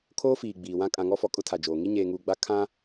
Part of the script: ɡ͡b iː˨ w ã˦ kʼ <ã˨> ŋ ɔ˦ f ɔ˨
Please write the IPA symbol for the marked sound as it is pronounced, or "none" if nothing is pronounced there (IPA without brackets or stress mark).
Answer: ã˨